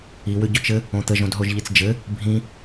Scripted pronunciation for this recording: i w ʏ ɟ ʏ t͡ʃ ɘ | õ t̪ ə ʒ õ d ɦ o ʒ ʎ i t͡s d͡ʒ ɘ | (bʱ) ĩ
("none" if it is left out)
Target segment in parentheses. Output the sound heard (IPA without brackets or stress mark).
bʱ